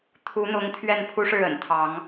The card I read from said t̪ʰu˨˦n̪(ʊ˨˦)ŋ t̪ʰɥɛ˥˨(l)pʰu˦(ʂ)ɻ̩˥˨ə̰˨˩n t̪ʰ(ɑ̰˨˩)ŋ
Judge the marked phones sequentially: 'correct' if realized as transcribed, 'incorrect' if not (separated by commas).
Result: correct, incorrect, correct, incorrect